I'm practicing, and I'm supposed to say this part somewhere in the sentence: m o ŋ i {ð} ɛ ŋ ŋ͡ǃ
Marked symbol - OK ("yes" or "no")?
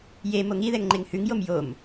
yes